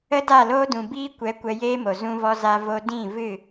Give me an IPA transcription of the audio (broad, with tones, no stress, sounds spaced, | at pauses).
ə˦ d a˦˨ l oː˦ d ũ˨ b iː˦ kʷ ɛ˨˦ kʷ ɛ˧ j eː˦ m o˨ z ũ˧ v ɔ˧ z a˧ v o˧ d ĩ˦˨ v ɨ˦˨